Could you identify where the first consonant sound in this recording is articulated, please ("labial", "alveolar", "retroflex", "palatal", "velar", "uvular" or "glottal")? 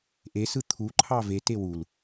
glottal